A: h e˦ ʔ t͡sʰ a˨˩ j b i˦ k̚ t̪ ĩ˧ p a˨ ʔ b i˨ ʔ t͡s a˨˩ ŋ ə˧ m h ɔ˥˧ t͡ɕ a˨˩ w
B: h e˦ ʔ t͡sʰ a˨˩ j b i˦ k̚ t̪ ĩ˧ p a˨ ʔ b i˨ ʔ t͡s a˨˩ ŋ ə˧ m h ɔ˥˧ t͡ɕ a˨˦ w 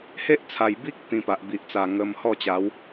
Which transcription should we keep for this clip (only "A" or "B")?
B